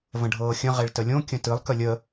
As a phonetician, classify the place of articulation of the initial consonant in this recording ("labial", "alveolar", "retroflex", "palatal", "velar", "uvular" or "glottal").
labial